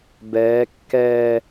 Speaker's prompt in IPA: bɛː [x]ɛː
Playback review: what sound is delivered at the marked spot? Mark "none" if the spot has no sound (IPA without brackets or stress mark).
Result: kː